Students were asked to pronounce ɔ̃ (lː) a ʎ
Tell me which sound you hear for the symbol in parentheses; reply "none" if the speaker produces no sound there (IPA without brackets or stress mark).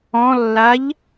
lː